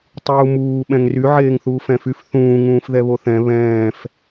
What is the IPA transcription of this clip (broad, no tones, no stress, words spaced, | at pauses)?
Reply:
tˤuːmuː ɓɛ̃ŋry ʕeːŋθuːfɛ̃fyf θũː ŋũːfðɛβoθɛ̃ βɛ̃ːf